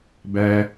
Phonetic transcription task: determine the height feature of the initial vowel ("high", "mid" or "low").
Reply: low